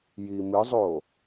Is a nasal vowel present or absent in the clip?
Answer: absent